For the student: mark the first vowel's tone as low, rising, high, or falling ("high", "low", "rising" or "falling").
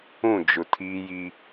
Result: falling